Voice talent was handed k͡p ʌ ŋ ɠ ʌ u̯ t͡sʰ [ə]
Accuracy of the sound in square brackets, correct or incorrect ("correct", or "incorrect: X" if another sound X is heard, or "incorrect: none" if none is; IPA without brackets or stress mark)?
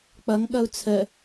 correct